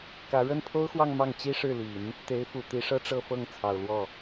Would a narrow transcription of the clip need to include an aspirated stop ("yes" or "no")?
yes